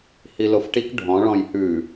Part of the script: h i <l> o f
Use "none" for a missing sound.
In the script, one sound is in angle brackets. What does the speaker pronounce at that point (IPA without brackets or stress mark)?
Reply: l